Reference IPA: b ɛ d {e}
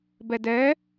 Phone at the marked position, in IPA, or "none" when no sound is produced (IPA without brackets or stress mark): ɛ